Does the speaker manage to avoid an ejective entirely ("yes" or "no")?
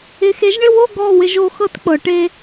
yes